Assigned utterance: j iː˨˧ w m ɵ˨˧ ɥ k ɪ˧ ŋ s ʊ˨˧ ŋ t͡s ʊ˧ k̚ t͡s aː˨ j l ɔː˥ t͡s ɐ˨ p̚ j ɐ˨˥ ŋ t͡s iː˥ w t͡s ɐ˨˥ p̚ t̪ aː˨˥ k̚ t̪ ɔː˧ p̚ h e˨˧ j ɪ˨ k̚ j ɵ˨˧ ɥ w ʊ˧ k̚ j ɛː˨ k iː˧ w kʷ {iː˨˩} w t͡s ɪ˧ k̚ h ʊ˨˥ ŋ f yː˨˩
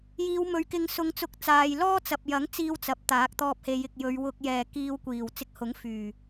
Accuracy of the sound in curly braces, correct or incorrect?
correct